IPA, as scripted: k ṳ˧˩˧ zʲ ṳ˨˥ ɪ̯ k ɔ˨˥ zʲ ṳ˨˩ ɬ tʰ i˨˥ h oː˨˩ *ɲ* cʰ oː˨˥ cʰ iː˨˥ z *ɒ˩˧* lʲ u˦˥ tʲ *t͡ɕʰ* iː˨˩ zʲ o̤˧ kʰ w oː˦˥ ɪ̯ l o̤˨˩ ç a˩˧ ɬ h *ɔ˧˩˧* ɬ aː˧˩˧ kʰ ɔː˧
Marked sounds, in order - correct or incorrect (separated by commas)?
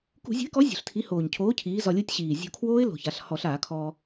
correct, incorrect, incorrect, correct